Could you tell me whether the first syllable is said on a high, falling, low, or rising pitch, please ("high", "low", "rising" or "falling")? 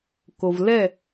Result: low